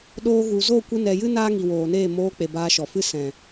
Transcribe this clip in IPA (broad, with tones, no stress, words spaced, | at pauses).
ɗoː˧ɣu˨ zo˦˨kʷɨ˧nɛ˨jɨ˦ naː˦ŋi˨woː˨neː˦˨ moː˧k͡pe˨ baː˧ʃɔ˨fɨ˦ sɛ̃˨